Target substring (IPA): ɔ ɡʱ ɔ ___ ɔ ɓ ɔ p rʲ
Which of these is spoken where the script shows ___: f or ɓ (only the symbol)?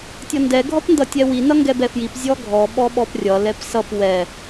ɓ